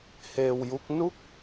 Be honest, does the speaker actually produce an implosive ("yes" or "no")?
no